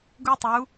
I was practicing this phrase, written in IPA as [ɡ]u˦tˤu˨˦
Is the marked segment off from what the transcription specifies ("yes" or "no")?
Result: no